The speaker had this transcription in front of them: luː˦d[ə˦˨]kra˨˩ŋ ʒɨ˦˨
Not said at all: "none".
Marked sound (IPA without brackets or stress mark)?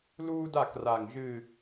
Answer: a˦˨